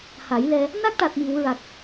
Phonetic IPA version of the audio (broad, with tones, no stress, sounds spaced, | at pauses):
h a˨˩˦ j l ɛ˧ | n a˦˥ k̚ ʈ a˨˩ t̚ m i˨˩˨ w ɹ a˨˩ k̚